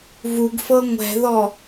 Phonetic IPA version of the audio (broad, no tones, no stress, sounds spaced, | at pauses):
v u ɡ f ɤ ŋʷ ɛ̤ ð ɔ